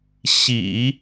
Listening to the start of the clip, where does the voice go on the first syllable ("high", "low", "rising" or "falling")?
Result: low